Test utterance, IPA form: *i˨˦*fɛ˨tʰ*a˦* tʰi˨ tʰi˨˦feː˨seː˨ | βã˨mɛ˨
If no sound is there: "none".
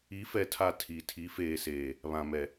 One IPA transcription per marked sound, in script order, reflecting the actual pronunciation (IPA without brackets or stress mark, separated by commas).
i˨˦, a˨